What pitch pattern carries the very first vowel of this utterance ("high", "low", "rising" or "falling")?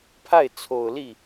falling